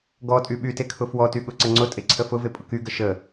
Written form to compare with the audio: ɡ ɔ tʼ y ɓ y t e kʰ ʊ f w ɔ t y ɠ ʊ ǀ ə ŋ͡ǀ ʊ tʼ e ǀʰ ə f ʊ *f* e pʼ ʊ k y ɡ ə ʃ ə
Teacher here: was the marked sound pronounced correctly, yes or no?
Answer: no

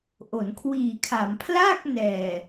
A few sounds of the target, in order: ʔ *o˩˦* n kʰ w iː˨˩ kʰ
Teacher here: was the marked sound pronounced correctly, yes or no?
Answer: yes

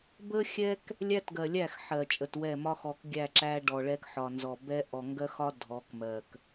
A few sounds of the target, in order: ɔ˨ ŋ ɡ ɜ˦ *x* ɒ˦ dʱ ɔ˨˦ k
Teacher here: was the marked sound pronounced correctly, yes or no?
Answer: yes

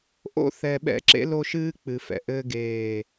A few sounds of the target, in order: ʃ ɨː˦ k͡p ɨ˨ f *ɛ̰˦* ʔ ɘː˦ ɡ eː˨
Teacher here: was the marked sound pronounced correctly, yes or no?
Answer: no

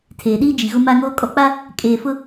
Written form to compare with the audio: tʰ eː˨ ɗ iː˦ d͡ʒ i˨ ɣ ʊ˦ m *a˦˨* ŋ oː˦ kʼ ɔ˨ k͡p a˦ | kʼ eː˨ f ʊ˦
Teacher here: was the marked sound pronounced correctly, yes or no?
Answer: no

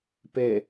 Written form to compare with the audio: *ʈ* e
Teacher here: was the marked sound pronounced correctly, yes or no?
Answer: no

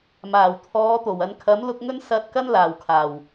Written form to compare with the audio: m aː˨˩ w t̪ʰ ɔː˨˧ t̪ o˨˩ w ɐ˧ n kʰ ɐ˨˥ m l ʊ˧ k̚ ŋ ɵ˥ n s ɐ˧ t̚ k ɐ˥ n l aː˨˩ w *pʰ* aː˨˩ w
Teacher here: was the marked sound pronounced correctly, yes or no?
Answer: no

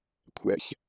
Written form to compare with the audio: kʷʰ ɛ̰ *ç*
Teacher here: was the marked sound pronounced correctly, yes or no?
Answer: yes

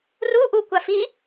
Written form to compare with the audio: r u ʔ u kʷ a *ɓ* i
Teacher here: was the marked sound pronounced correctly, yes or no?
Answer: no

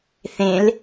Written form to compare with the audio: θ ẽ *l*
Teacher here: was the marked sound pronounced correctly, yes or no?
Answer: yes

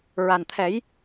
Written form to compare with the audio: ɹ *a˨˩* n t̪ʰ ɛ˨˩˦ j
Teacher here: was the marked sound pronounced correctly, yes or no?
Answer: yes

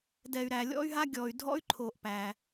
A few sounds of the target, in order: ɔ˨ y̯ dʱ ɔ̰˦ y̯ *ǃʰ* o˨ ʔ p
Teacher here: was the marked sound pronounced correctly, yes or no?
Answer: yes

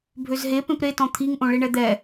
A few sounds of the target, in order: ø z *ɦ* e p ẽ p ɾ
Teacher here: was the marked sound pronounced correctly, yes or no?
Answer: yes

